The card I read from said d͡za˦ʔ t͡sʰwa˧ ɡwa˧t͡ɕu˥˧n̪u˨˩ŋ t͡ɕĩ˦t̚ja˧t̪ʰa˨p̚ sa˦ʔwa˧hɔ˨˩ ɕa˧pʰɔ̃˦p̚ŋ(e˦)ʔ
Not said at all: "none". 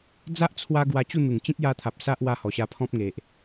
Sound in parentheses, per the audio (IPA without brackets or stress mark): e˨